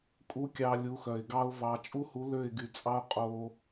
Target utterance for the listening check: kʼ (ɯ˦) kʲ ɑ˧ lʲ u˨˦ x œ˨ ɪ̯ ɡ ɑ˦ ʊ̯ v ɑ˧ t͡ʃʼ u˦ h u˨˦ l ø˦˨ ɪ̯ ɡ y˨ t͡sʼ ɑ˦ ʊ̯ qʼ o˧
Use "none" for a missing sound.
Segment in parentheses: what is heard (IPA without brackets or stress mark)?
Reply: u˦